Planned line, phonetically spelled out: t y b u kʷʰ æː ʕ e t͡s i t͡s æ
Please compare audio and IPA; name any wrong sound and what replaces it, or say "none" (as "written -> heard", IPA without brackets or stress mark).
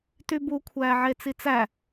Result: none